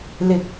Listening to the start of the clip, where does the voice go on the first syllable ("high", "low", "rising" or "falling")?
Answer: low